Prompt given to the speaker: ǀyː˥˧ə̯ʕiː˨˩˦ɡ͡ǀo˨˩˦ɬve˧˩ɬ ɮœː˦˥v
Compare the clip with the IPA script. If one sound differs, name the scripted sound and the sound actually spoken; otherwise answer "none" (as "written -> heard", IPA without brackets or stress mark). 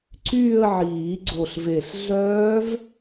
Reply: o˨˩˦ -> o˧˩